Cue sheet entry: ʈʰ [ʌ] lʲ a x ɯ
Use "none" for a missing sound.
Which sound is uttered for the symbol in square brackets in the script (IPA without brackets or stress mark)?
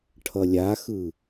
ʌ